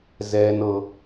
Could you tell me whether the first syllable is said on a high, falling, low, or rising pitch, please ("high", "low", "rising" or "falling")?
high